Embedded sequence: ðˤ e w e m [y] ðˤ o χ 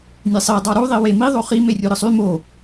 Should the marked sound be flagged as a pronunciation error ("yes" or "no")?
yes